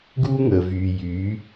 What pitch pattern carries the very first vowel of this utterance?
high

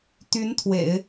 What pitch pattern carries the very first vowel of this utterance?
rising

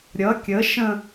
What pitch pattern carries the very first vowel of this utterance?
rising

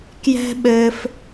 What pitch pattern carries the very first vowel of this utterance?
high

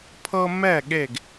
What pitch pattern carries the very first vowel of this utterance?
high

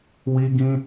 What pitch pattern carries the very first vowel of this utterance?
high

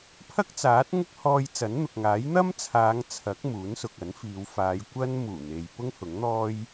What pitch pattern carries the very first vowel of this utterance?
high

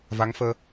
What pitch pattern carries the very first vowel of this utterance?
rising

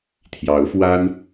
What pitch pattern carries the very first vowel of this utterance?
rising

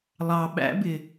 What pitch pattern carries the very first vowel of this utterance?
low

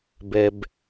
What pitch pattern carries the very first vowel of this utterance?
high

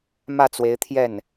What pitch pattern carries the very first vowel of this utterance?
falling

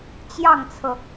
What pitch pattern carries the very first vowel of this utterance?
falling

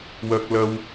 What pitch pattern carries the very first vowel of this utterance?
high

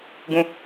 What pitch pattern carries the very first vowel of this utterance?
low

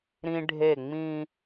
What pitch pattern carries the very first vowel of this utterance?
high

